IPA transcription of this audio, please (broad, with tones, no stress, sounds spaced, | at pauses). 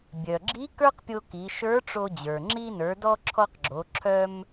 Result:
bʲ œ˩ ɡ͡ǁ i˧˥ k ə˞˥ q pʲ o˧ k i˩˧ ʃ ə˞˧˥ ʈ͡ʂ o˧ d͡ʑ ə˞˩ ŋ͡ǁ i˧ n ə˞˩˧ d ɔ˧ ǁʰ ɔ˧ q ɡ͡ǁ o˩˧ ǁʰ œ˧ m